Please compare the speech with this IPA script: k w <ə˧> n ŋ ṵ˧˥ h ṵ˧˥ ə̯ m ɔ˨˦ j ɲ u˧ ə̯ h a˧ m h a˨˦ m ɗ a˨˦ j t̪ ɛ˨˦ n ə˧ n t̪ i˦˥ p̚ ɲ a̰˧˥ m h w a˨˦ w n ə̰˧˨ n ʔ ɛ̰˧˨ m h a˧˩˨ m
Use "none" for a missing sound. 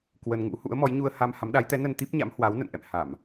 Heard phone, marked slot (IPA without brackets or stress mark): ə˧